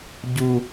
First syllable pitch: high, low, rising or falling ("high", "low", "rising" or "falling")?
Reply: high